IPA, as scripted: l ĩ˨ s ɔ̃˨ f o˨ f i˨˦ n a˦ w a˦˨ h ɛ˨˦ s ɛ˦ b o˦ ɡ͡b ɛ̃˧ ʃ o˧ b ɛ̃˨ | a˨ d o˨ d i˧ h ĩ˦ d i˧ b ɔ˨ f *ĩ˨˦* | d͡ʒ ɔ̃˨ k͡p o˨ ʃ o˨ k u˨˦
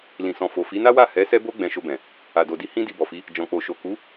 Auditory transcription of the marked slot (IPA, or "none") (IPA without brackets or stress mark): i˨˦